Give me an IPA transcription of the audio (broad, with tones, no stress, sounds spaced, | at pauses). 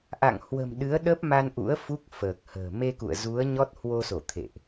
ʔ a̰˧˨ ŋ h w ə̤˨˩ m ɗ ɨ˨˦ ə̯ ɗ ə˦˥ p̚ m a˧ n ʔ ṵ˧˥ ə̯ f u˦˥ k̚ f əː˨˩ k̚ h ə̤ː˨˩ m e˧ k ṵ˧˨ ə̯ z u˨˦ ə̯ ɲ ɔ˦˥ t̚ h w o˧ s o˧˩ t̪ʰ ḛ˧˨ ʔ